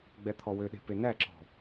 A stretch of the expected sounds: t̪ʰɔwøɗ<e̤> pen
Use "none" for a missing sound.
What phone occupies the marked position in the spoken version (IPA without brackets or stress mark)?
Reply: e̤